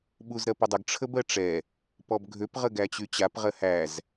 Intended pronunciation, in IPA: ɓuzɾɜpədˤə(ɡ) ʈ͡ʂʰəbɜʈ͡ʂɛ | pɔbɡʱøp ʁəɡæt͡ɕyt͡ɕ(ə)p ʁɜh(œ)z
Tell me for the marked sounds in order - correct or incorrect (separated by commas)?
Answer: correct, incorrect, incorrect